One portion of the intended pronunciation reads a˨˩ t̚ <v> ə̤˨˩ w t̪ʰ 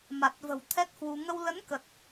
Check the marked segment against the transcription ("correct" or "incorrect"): correct